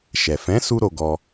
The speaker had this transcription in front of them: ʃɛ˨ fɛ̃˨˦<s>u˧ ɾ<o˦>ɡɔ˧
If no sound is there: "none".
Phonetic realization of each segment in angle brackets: s, o˧

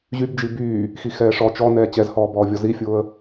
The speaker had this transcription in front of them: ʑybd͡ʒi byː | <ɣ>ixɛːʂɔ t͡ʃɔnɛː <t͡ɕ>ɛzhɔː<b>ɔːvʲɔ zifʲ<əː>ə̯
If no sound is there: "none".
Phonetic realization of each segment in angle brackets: x, t͡ɕ, b, ʊː

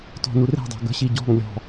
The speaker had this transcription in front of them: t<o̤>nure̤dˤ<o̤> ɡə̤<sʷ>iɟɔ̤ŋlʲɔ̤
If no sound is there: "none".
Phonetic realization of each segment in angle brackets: ɔ̤, o̤, ɕ

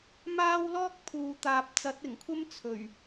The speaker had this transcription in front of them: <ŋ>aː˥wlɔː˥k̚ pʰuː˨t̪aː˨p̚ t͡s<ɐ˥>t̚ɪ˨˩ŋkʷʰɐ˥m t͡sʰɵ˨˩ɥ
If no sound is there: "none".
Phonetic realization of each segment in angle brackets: m, ɐ˨˥

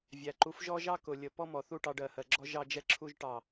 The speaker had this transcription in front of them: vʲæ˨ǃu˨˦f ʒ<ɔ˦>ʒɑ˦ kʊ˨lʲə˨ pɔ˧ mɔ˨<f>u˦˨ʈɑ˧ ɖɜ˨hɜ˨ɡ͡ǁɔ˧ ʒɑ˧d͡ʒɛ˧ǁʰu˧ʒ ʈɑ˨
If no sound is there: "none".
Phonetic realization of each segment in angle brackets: ɔ˦, θ

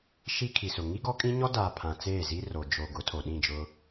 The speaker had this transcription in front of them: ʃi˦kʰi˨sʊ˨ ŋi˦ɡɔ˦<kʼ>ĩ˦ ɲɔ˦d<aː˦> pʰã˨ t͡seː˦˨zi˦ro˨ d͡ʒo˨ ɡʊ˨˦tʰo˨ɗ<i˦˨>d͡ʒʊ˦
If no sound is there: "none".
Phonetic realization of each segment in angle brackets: kʼ, aː˨, ĩ˦˨

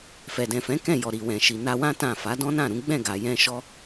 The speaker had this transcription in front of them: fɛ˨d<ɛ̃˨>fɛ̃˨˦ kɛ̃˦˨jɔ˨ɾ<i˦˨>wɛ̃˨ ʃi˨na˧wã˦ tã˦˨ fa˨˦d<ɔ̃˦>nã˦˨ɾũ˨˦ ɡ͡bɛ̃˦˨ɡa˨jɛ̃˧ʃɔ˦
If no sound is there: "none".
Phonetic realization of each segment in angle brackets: ɛ̃˨, i˨, ɔ̃˦

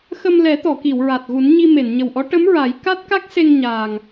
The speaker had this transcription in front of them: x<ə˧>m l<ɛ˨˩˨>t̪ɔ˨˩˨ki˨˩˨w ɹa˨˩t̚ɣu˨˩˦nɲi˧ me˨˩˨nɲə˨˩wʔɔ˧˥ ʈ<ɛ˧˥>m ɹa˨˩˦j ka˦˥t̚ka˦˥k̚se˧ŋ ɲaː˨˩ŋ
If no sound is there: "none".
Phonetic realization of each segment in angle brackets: ə˧, ɛ˨˩˦, ə˧˥

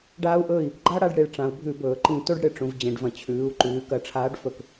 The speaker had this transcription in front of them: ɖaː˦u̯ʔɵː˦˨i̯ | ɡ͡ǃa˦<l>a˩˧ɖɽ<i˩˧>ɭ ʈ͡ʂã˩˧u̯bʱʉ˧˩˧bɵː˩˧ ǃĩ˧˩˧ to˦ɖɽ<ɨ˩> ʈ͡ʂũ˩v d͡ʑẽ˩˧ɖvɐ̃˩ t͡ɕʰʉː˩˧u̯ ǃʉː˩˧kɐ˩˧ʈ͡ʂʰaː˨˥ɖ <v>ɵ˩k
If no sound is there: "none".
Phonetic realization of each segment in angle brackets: ɽ, i˩˧, ɨ˩, f

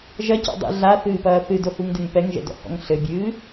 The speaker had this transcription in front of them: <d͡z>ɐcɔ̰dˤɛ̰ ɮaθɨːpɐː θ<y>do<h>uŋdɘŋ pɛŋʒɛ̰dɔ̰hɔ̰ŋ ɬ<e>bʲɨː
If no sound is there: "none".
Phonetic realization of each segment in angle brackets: ʒ, ɨ, h, ɘ

